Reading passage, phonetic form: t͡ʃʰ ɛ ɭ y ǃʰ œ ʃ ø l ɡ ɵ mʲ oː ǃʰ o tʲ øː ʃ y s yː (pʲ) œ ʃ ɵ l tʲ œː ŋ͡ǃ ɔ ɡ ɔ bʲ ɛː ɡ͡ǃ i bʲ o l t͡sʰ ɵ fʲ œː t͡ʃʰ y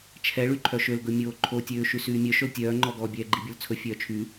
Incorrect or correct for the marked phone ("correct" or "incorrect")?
incorrect